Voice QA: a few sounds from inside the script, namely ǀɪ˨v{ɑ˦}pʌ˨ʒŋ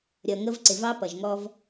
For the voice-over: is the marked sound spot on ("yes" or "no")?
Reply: yes